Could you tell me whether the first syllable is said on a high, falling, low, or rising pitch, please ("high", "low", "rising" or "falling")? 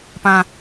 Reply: high